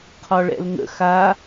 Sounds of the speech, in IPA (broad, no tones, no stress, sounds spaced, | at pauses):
qʰ ɒ ɭ ɛ̰ l ŋ ə̰ x a